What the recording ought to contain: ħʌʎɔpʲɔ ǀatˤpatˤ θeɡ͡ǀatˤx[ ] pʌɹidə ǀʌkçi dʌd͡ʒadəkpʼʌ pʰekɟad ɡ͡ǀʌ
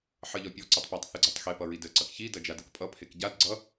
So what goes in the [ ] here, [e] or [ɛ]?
e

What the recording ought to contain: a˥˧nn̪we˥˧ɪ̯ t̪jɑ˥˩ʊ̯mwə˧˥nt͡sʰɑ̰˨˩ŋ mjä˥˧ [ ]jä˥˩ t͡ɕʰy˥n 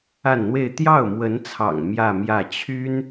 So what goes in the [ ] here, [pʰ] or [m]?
m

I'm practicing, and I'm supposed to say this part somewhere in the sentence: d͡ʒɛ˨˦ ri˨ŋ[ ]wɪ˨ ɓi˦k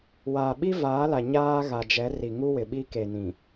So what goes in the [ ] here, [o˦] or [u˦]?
u˦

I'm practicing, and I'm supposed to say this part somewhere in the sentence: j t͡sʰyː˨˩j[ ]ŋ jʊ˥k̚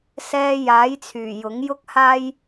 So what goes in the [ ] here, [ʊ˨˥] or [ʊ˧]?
ʊ˨˥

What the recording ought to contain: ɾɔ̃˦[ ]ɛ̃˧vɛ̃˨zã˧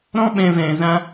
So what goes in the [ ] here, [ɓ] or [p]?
ɓ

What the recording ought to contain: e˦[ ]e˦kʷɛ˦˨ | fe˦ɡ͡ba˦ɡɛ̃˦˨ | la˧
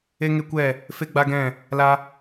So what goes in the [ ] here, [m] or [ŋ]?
ŋ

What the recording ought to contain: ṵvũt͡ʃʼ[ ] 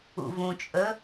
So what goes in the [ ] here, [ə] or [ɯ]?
ə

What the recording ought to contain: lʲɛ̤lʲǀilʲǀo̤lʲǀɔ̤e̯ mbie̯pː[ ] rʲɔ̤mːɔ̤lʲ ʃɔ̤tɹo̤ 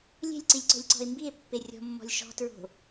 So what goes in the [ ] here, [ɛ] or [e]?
e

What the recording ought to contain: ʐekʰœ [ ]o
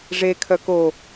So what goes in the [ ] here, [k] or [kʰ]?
k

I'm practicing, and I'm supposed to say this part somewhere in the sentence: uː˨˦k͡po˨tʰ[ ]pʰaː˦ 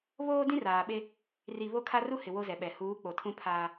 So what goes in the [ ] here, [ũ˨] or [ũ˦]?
ũ˦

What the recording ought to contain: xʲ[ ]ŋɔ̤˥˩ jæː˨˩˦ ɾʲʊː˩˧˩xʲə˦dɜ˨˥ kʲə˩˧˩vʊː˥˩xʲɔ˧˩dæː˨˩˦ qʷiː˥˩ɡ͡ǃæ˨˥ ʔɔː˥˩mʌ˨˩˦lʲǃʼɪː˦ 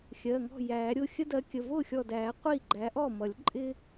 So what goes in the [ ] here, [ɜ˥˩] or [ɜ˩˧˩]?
ɜ˩˧˩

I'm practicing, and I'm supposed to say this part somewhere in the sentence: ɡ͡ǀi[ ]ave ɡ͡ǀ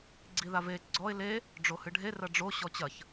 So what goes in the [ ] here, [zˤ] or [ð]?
ð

